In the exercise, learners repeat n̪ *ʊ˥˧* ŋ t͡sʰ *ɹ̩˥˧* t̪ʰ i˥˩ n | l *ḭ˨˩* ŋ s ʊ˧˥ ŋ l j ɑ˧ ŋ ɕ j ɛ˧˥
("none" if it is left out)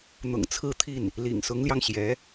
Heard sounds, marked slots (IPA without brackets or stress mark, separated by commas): ʊ̰˨˩, ɹ̩˥˧, ḭ˨˩